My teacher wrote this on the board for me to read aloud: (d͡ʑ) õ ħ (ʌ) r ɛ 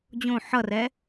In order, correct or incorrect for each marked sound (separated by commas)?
correct, correct